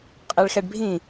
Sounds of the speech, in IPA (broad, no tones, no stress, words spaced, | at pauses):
qʼɛɭxɛɖbʱĩ